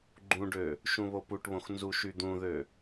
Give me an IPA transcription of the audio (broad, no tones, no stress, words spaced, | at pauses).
ɡ͡ǃũɖø | ʃũβopuʈβõx nzuʃyd̪ũðø